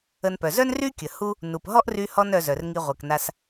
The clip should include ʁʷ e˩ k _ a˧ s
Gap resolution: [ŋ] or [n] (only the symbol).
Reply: n